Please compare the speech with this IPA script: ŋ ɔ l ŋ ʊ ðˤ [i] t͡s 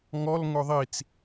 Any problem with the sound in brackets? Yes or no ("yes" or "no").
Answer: no